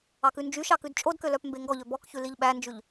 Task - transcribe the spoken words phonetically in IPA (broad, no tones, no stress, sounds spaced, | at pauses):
ɑ k ʉ n d͡ʒ y ʃ ɑ k ʉ d t͡ʃʼ o d k ø l œ p m b e ŋ ɡ ɔ ʎ ø b ɔ k ç ʉ l i ʎ ɓ æ n d͡ʒ ʉ ʎ